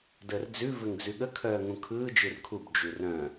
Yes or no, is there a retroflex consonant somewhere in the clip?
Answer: no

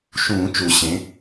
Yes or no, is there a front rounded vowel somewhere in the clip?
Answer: no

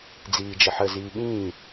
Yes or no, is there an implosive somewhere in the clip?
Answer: yes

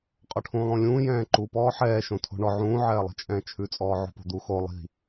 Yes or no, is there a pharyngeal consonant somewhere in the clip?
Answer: yes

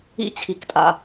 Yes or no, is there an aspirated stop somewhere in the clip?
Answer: yes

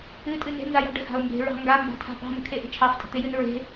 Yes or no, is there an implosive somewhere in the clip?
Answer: no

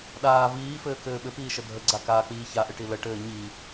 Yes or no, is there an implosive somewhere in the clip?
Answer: yes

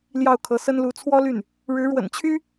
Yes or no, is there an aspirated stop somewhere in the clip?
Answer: yes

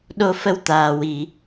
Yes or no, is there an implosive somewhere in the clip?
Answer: yes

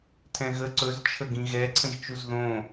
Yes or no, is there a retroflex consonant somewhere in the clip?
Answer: no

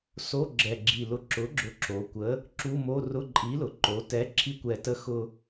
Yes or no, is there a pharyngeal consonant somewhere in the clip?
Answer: no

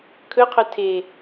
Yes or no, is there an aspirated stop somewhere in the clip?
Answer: yes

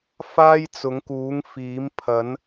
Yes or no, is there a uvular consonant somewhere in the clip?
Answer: no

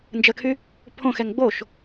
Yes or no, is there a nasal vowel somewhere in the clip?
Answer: yes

